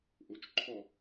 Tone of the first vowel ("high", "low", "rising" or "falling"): rising